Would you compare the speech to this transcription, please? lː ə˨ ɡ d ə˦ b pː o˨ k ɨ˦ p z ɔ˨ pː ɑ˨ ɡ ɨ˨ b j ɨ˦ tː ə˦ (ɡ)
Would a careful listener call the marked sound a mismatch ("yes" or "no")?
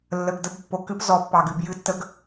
no